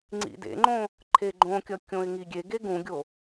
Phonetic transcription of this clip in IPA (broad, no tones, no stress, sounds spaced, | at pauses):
ŋ͡ǀ ḭ d ḛ ŋ͡ǃ õ | ǃʰ e ɡ͡ǃ õ kʲ ʌ kʲ õ ɪ̯ ŋ i ɡʲ e ɡ e ɡ ũ ɡʲ o